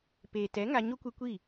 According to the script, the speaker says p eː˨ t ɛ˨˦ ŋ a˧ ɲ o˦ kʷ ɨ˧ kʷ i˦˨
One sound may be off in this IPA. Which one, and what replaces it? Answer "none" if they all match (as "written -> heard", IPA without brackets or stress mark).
none